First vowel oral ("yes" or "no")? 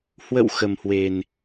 yes